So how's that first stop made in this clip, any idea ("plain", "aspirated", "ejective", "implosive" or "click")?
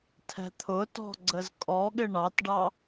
aspirated